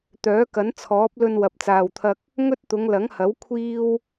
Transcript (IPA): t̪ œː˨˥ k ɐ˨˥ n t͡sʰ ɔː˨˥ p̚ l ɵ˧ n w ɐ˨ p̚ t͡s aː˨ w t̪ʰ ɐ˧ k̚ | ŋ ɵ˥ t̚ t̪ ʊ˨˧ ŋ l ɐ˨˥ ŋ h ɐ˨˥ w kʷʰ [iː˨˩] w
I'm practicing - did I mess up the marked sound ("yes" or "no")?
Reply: yes